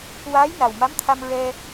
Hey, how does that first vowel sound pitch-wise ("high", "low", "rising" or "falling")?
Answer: rising